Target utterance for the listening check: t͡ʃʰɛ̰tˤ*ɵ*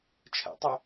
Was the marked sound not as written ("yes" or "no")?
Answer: no